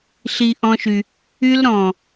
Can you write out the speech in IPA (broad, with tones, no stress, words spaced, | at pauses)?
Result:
ɬi˧ ʔɔ̃˦ʃy˧ | y˦lɾɔ̃ː˨